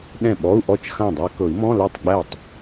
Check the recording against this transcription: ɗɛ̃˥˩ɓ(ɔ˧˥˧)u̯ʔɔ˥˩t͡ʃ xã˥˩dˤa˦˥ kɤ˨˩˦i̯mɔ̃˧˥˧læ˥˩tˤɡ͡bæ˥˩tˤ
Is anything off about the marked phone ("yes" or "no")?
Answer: no